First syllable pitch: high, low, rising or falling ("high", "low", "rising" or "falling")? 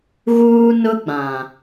high